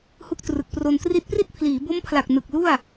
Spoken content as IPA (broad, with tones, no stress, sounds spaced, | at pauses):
h u˦˥ k̚ t r ɯ˨˩ k̚ p r o˧ n t r i˦˥ t̚ p r i˥˩ t̚ pʰ l iː˩˦ b o˦˥ m pʰ l a˨˩ k̚ n ɯ˨˩ k̚ l u˥˩ a̯